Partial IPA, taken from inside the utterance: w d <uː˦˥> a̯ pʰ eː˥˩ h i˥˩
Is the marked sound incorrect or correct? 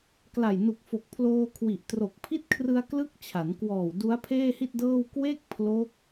incorrect